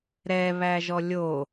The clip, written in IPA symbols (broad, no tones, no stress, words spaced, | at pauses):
ɾɛβæʒɔ lʲo